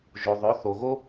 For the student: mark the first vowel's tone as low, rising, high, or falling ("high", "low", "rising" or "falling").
low